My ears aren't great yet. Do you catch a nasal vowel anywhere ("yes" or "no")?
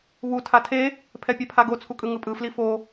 no